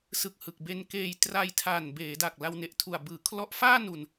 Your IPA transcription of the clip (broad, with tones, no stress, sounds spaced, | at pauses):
s ɯ˨˩ k̚ h ɯ˨˩ k̚ b e˧ n k eː˧ j t r a˧ j tʰ aː˨˩ n b eː˩˦ d a˨˩ k̚ l a˧ w n e˨˩ ʔ tʰ u˨˩ a̯ b ɯː˩˦ kʰ l ɔ˦˥ ʔ f aː˥˩ n u˨˩ n